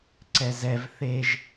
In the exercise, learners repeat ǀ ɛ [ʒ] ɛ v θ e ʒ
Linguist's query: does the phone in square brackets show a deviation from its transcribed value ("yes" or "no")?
yes